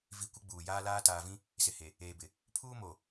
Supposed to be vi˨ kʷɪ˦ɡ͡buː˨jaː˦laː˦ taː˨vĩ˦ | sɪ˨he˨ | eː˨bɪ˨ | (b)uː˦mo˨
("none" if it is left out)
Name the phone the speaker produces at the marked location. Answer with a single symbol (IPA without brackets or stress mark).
pʰ